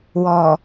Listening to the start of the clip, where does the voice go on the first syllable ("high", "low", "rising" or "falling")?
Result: low